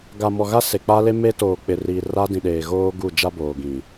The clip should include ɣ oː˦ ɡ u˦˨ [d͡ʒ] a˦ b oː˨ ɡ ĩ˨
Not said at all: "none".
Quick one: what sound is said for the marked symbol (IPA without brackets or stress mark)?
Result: d͡ʒ